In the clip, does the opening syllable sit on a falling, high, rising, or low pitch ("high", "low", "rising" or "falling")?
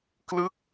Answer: falling